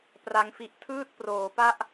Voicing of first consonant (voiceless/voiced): voiceless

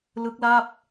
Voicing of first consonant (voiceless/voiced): voiced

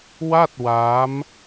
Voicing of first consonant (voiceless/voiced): voiced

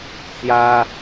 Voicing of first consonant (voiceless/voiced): voiceless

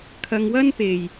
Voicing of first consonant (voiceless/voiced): voiceless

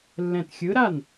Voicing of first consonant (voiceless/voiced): voiced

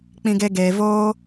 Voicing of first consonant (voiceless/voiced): voiceless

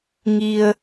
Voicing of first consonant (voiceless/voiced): voiced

